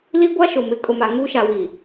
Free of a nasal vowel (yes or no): yes